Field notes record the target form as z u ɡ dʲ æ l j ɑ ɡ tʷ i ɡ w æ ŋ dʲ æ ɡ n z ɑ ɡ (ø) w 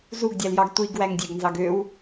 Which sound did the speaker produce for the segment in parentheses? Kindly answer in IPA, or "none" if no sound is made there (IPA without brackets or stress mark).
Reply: ø